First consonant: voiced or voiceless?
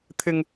voiceless